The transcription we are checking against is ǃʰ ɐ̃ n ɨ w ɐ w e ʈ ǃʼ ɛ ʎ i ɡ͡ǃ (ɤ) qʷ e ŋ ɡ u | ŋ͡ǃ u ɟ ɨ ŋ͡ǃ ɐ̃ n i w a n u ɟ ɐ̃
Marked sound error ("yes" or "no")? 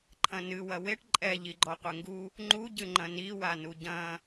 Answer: yes